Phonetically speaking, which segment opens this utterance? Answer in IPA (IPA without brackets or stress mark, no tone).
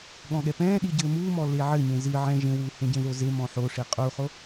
ɠ